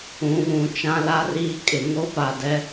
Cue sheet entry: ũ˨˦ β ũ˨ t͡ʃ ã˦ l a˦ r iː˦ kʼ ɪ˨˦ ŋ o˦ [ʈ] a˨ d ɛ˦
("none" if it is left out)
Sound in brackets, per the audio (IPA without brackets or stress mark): p